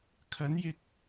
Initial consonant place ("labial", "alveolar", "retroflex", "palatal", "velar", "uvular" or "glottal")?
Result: velar